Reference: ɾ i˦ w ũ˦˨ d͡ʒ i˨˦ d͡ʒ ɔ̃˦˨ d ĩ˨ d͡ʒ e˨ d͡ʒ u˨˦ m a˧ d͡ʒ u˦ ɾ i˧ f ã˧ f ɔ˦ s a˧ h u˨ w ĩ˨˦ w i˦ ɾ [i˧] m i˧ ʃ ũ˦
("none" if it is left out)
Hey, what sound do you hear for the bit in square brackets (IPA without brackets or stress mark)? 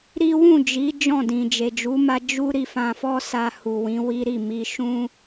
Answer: i˦˨